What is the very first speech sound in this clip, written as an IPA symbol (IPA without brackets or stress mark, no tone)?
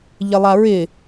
ʎ